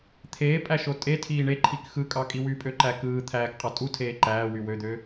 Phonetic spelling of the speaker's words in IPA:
t̪ʰ eː pʼ æ ʃ o tʼ e tʰ iː ɳ e ǃʰ i k x ɯ kʼ ɑ kʼ i w y pʼ ø ǃ æ k ɯː t̪ʰ æː k qʼ ɑ tʼ u tʰ eː ǃ æː w y w ø d̪ ø

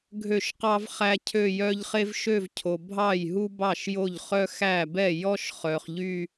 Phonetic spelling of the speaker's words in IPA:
ɡʱ ø˥˩ ʃ q ɑ˥ v χ æ˥ cʰ ø˥˧ j œ˥ ʎ χ e˥ v ʃ ø˥˧ v cʰ o˨ bʱ ɑ˥˩ j ɦ u˥ b ɑ˥˩ ʃ j o˥˩ ʎ χ œ˥ x æ˥˩ b ɛ˥˩ j ɔ˥ ʃ χ œ˨ χ ʎ y˥˧

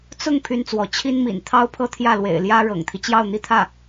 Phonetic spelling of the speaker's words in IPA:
t͡s ʊ˥˩ ŋ pʰ y˥ n t͡s w ɔ˧˥ t͡ɕʰ i˥ n m ḭ˨˩ n t̪ʰ ɑ˥ ʊ̯ pʰ ɤ˥˧ t̪ʰ j ä˥˩ l w ḛ˨˩ ɪ̯ l j ä˥ ɻ ɤ̰˨˩ ŋ t̪ʰ i˦ t͡ɕ j ɑ˥˧ ʊ̯ n̪ i˥˧ t̪ʰ ä˥˩

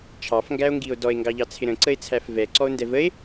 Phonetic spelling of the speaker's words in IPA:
t͡ʃʰ ɑ f ŋ ɡ æ o̯ ŋ ɡ i o̯ d ɔ e̯ ŋ ɡ ɑ ʎ ɑ t͡sʰ ɪ ɾ ə̃ ǀ ə e̯ t͡sʰ æ f v ɛ ǀ ɔ o̯ n d ɛ v ə e̯

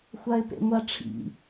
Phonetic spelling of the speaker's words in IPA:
xʷ a ɪ̯ p ḛ ŋʷ a ʈ͡ʂʰ ḭ

